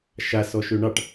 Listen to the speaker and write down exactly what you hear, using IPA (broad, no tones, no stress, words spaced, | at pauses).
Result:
ʃasɔ ʃøɳɑʈ